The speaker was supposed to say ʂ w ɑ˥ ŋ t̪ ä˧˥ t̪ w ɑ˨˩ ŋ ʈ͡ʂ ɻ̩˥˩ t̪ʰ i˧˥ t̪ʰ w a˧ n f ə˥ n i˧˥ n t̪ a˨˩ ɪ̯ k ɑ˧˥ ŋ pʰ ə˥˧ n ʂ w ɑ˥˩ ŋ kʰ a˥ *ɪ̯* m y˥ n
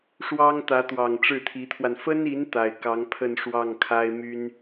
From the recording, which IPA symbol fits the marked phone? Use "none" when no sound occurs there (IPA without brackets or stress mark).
ɪ̯